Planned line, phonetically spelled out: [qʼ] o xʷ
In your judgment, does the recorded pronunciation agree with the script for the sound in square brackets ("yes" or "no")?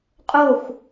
yes